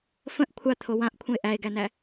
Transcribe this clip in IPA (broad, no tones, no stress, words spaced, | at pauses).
fə̃ʔ kʷʰat̪ʰo wãʔkʷʰə̃e̯ ʔæe̯ɡænæ